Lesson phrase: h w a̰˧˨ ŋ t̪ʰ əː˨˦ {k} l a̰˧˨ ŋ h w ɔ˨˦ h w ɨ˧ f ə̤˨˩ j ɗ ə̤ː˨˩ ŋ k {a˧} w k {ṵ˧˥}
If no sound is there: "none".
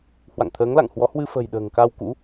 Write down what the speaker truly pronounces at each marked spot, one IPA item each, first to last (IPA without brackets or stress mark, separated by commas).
ŋ, a˧, ṵ˧˥